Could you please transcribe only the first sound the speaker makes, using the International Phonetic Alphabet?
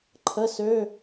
ǃʰ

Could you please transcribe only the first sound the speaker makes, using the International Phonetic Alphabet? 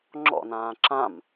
ŋ͡ǁ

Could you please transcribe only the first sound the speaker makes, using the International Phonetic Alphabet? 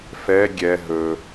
f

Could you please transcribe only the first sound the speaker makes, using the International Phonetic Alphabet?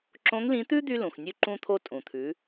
ǁ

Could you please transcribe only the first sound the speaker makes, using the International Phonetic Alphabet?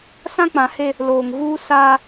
s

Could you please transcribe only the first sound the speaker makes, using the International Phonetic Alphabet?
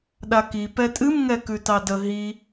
ɗ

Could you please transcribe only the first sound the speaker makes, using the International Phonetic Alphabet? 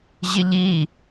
ʑ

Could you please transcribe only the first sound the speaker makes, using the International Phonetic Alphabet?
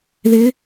ð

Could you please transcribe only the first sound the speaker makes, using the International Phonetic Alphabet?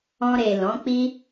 ɔ̃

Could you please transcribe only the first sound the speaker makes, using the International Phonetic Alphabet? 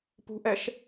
p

